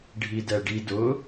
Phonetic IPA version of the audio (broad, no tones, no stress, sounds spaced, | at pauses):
ɖʱ i d ɛ ɖ i d ʊ